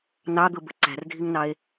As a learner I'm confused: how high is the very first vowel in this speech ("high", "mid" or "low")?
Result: low